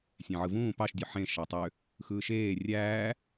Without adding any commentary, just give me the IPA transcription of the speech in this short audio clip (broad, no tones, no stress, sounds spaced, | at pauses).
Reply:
sʲ æ̃ ʕ ɯ v ũː p ɑ ʃ dʲ ø ħ ẽ ʃ ɑ tˤ ø | x ɯː ʃ eː rʲ æː